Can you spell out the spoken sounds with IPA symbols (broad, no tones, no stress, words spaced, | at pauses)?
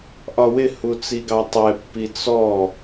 ʔɒwɪ hut͡siɡɑtˤɛ pːit͡sɔ